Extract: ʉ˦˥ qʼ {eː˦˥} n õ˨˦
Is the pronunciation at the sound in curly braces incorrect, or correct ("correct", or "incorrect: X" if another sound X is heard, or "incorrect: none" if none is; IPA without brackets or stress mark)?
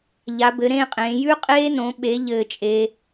correct